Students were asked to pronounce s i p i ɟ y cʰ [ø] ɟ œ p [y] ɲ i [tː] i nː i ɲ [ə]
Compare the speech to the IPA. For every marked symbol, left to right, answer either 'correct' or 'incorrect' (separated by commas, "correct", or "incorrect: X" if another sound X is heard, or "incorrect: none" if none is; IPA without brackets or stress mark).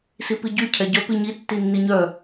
incorrect: ɛ, incorrect: i, correct, incorrect: œ